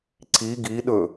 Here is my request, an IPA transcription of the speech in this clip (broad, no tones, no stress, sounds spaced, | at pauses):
ǀ i ɡ i ɗ ɵ